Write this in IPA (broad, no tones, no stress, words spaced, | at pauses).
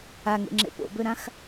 aŋḛŋ͡ǁḛ po̰bøɾãx